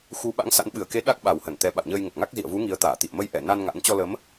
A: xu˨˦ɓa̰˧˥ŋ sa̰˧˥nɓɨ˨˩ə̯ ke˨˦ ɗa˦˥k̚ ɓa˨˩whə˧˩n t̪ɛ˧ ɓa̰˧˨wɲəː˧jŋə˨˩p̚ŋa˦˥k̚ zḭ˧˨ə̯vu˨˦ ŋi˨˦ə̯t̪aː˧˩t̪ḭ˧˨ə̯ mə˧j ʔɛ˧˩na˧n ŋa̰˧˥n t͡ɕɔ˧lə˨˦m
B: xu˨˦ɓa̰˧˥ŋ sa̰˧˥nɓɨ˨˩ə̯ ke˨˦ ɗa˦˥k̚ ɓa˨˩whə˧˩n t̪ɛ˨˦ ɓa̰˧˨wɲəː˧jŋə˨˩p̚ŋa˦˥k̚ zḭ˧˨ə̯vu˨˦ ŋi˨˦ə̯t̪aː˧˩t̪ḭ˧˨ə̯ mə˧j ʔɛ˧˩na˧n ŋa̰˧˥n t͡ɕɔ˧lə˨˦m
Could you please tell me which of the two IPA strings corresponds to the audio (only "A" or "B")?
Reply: B